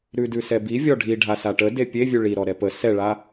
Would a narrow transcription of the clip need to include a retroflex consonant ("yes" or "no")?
yes